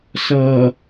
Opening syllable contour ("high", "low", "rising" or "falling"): low